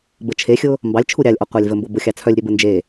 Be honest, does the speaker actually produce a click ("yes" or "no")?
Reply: no